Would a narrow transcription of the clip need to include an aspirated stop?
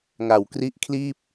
yes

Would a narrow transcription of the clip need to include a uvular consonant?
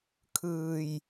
no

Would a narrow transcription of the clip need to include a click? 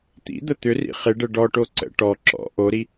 yes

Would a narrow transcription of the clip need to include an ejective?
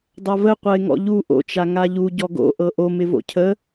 no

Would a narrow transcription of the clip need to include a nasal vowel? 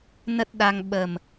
no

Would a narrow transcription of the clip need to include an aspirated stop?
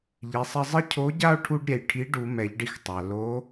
yes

